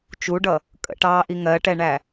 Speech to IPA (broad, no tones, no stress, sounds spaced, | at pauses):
t͡ʃ u ɖ ʌ | kʼ ə̰ ʈ ɑː ʔ i ŋ ɜ ʈ ɛ ɳ æ